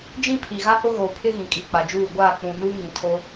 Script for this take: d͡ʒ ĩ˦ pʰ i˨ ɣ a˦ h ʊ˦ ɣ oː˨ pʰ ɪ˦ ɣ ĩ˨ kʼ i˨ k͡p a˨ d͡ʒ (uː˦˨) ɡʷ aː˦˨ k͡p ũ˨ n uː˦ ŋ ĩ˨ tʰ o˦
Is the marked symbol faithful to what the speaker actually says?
yes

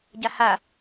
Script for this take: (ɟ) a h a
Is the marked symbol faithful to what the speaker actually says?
yes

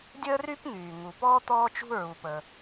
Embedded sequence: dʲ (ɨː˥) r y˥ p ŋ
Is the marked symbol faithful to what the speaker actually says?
no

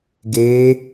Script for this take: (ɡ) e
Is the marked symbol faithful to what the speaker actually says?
yes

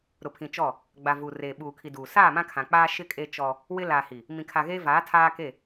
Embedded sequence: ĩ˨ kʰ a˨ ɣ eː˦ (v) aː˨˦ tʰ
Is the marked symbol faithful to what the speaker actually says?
yes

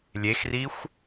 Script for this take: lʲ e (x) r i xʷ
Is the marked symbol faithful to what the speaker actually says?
yes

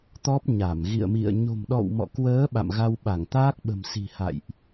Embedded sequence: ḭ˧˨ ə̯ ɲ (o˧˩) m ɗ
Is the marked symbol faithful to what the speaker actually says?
no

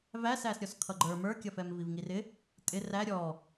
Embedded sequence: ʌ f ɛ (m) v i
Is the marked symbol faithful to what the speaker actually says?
yes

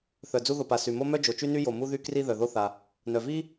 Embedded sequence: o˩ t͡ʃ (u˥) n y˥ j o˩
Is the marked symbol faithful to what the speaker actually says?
no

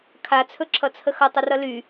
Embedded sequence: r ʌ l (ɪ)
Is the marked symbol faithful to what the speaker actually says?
no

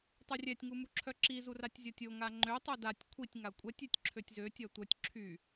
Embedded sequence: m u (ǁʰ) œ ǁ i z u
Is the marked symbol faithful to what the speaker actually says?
yes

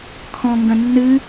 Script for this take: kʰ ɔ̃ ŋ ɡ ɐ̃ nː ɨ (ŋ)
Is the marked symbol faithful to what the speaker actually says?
no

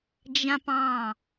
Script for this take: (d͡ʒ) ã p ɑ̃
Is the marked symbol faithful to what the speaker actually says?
yes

